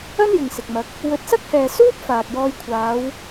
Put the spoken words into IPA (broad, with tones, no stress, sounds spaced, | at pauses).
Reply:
ɐ˥ n j ɪ˨ ŋ s ɪ˨ k̚ m ɐ˨˥ k̚ | w ɵ˨˥ t̚ s ɐ˥ k̚ h ɛː˨ s uː˥ p̚ f aː˨ k̚ j ɔː˧ j kʷʰ aː˨˧ w